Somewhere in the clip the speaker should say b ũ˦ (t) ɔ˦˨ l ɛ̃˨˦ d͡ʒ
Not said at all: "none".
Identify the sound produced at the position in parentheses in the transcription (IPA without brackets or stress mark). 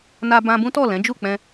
t